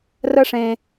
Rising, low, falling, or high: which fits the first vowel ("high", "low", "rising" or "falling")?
high